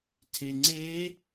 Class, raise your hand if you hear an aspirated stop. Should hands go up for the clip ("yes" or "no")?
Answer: yes